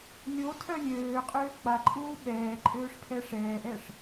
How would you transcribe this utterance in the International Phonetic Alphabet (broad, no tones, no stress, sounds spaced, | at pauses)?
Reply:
lʲ o tʰ œ lʲ øː qʼ øː k͡p a ǃʼ uː ɓ ɛː ǃʼ øː ʂ pʰ ɛ ʂ ɛː ʔ ɛ ʂ